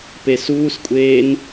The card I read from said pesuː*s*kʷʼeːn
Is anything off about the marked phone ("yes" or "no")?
no